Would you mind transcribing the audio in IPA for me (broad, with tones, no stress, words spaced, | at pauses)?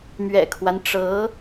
mɥɛ̰˨˩kʰwa˦nʈ͡ʂɤ˧˥